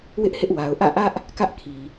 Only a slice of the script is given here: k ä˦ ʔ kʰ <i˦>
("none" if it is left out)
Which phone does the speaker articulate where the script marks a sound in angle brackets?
i˨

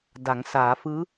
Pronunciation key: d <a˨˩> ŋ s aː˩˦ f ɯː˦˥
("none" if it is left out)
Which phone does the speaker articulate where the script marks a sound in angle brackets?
a˩˦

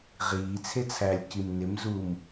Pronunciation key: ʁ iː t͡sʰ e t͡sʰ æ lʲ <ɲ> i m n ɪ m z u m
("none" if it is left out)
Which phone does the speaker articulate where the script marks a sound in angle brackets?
c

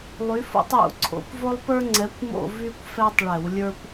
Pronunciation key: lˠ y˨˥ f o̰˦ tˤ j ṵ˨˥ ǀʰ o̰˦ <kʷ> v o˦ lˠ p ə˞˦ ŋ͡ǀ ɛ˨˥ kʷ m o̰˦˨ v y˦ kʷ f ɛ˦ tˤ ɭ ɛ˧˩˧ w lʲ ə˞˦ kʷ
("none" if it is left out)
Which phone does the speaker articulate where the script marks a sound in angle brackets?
kʷ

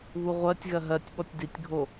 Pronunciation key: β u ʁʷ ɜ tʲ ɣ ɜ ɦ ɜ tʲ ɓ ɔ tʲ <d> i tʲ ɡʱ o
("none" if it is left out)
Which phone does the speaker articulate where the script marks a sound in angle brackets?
d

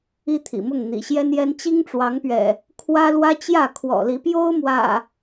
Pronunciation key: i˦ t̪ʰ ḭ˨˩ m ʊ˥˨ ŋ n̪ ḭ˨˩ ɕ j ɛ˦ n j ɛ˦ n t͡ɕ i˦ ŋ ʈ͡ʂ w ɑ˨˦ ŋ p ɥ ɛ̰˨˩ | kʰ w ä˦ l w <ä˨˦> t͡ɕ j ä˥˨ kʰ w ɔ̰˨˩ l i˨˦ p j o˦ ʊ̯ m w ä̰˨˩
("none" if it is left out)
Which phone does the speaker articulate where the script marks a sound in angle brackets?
ä˦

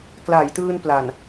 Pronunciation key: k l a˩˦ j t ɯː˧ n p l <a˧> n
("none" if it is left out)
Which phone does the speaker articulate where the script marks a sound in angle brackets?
a˨˩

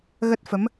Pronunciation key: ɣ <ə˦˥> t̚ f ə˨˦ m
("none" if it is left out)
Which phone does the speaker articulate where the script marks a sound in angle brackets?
ə˦˥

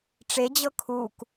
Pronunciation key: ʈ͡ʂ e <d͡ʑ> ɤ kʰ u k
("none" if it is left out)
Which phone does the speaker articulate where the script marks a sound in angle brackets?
d͡ʑ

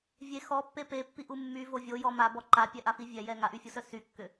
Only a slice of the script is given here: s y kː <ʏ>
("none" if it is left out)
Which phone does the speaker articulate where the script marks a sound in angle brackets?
ʏ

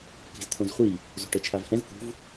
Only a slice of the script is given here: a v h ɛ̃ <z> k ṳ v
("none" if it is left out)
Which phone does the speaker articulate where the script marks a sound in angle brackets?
z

